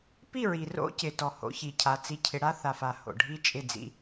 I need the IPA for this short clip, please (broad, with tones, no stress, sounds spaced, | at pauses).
p i˦˨ ɹ i˨ r o̰˦ c ɪ˨ t ɔ˨ h o̰˦ ç i˨ cʰ a˨˦ t͡s i˦ cʰ ɪ˦ ɽ a˦ θ a˨ f a˨ h o̰˨ ɖʱ i˦ t͡ʃʼ ɪ˦˨ d͡z ḭ˦